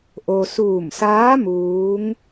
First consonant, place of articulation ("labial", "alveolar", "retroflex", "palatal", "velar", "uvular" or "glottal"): glottal